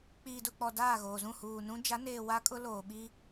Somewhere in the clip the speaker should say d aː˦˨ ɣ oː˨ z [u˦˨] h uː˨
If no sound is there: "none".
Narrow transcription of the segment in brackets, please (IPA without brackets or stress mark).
ũ˦˨